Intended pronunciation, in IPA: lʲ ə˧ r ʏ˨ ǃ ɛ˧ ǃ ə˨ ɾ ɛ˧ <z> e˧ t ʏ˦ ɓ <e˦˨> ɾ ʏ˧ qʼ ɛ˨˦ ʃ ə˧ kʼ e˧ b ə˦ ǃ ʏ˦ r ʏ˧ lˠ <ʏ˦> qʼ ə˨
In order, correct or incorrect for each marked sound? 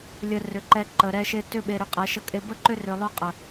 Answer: incorrect: ʃ, incorrect: e˧, correct

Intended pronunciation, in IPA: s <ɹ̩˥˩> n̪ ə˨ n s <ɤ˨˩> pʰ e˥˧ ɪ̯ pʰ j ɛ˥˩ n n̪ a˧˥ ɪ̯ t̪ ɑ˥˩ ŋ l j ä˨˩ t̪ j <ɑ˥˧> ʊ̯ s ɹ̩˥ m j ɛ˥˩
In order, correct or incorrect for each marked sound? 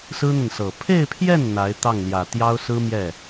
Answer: incorrect: ɹ̩˥, correct, incorrect: ɑ˥

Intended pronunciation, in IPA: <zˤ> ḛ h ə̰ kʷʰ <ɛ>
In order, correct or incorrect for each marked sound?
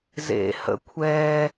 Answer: incorrect: z, correct

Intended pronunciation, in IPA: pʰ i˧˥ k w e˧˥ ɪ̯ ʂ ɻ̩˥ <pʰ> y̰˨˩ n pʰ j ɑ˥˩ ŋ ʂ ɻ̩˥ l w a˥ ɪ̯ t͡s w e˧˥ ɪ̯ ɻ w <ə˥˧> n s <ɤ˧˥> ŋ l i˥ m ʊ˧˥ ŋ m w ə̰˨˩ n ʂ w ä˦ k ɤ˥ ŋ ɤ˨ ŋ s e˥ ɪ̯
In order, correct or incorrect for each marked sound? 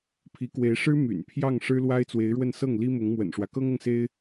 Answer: incorrect: m, correct, incorrect: ɤ˥˩

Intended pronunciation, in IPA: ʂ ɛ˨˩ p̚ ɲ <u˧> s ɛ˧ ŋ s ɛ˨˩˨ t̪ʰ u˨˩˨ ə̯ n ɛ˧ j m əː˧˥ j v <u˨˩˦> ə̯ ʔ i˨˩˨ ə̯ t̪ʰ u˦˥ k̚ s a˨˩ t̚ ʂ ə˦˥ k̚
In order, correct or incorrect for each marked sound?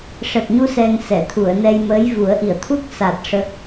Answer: correct, correct

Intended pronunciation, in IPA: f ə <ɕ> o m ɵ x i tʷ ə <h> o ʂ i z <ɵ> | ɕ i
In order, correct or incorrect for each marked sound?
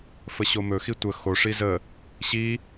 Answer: correct, incorrect: x, incorrect: ə

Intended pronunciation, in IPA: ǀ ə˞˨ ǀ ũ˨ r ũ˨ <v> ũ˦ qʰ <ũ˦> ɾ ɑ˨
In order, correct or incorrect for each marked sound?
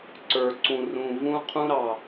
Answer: correct, correct

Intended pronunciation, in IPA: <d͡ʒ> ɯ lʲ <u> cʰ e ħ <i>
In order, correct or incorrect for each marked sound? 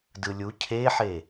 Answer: incorrect: d, correct, incorrect: e

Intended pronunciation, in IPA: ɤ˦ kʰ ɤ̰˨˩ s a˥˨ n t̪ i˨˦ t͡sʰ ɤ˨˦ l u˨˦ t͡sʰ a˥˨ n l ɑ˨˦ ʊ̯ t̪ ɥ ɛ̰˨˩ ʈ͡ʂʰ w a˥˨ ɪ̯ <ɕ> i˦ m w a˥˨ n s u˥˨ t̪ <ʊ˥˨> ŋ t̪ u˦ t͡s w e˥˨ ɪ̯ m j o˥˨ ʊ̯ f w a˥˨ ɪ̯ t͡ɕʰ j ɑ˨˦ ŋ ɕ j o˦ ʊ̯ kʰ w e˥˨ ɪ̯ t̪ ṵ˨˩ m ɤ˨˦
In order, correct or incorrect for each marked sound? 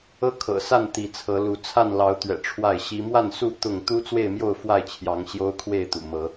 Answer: correct, correct

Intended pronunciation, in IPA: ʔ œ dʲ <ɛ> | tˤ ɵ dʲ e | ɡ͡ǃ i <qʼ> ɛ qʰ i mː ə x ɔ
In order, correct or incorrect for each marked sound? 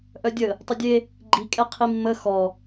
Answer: incorrect: ə, incorrect: kʼ

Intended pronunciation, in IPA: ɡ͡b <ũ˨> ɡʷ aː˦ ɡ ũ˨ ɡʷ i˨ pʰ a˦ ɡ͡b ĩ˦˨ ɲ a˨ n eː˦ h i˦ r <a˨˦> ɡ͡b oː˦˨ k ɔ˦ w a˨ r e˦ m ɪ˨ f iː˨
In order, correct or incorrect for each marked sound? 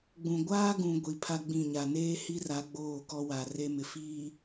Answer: correct, correct

